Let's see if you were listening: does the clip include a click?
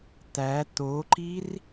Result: yes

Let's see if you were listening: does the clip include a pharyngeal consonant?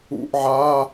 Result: yes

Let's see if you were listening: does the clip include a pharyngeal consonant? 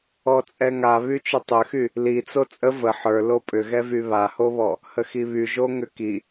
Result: yes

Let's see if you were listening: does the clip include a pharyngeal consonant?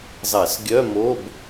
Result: no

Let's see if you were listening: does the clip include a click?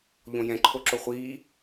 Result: yes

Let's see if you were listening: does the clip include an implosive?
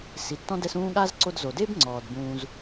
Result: yes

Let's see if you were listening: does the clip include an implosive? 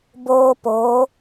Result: no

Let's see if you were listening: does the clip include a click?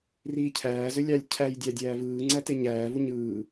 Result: yes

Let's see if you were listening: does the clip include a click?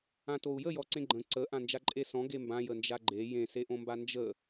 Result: yes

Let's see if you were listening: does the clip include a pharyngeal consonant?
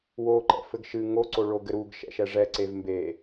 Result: no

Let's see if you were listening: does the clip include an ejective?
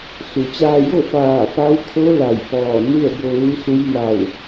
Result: no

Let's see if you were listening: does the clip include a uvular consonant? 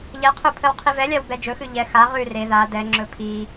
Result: yes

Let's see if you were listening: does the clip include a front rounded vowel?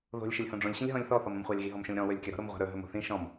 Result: no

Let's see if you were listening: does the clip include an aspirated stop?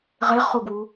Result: no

